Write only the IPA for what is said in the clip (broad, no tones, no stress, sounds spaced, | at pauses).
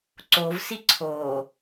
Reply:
ǀ o v s i ǀʰ oː